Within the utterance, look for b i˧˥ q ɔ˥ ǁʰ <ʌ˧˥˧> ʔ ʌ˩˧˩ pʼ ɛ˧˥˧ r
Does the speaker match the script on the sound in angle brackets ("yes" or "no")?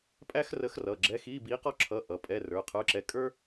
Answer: yes